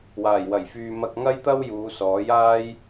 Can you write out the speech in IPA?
w aː˨˩ j w ɐ˨˩ j f yː˨ m ɐ˧ k̚ ŋ ɐ˥ j t̪ ɐ˥ w j uː˨˧ s ɔː˨˥ j aː˥ j

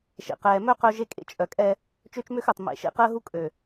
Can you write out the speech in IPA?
ʃ ḛ˨ q ɛː˨ m œ˦ q œ˦ ʒ e˦ kʼ ḛ˦˨ t͡ʃʼ œ˨ kʼ ɛ˦ | t͡ʃ ø˦ t͡ʃ m ø˦ x œ˨ tˤ m ḛ˨ ʃ ḛ˦ q əː˦ ɦ u˦ kʼ ø˨

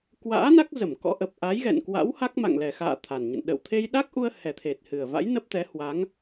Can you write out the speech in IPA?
k w a̰ː˧˥ n a˦˥ k̚ z ə˧˩ m k ɔ̰˧˥ ʔ ə˨˩ p̚ ʔ a˨˦ j ɣ ɛ̰˧˨ n k w a̰˧˥ w h a˦˥ k̚ m a̰˧˨ ŋ l ɛ˨˩ x a̰ː˧˨ t̪ʰ a˨˩ n ɲ ə̰˧˨ n ɗ ə̰˧˨ w t̪ʰ e˧ j ɗ a˦˥ k̚ ʔ u˧ ə̯ h ɛ˨˩ t̪ʰ e˨˩ t̚ h ɨ˨˩ ə̯ v a̰˧˥ j n ə˦˥ p̚ t̪ ɛ˨˦ h w a˨˦ ŋ

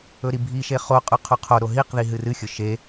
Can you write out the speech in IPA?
ɵ ɾ i bʱ i ʃ e χ o qʼ ʉ qʰ o qʰ o ɾ o ɦ i q ð i ɦ ɨ r ɨ xʲ ɵ ʃ e

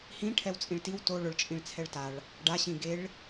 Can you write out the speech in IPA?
h ĩ ʈʰ ɛ w t͡sʼ ĩ ɭ t i w t o ɭ ʊ ɭ t͡ʃʼ ĩ ɭ t͡sʰ ɛ ɭ t a ɭ | ɖ a ɕ ĩ ɡ e ɭ

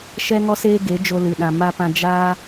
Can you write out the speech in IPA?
ʃ ɛ˦ ŋ ɔ˦ s eː˦ ɡ e˨˦ d͡ʒ o˧ l ɨ˨ ɗ ã˨ m a˧ p ã˧ d͡ʒ aː˦

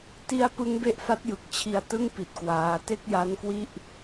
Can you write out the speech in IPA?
t i˦˥ a̯ p ɯ˦˥ ŋ b e˦˥ ʔ f a˦˥ t̚ j ɯ˨˩ k̚ t͡ɕʰ i˧ a̯ t ɯ˥˩ ŋ p i˨˩ t̚ k w aː˦˥ t e˥˩ k̚ j a˦˥ n k w i˥˩ ʔ

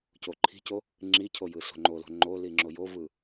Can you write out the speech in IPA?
c o ǃʰ i̤ c o | ŋ͡ǁ i cʰ o j ɯ s o̤ ŋ͡ǃ o l o̤ ŋ͡ǃ o l i ŋ͡ǁ o j o v ɯ

